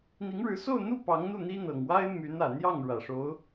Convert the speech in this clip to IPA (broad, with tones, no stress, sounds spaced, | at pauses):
n̪ i˧˥ ŋ ɻ ɻ̩˧˥ s o˥˧ ʊ̯ n̪ u˥˩ p ɑ˧˥ ŋ n̪ u˥˩ n̪ i˥ n̪ ɤ˨˩ ŋ w a˥ ɪ̯ m y˧˥ n ä˨˩ n̪ j ɑ˥˩ ŋ ɻ ä˨˩ ʂ o˧˥ ʊ̯